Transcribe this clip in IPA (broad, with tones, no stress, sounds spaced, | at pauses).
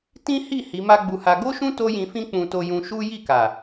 t ĩ˦ h i˦˨ h i˨˦ m a˦ ɡ͡b u˧ h a˧ ɡ o˦ ʃ ũ˦ t o˦ j ĩ˧ f ĩ˦ k͡p ũ˧ t o˧ j ũ˧ ʃ u˦ j i˦˨ k a˨